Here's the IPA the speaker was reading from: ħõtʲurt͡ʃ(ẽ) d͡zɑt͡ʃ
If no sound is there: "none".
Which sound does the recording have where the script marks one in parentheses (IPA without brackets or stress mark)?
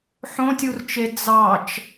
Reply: e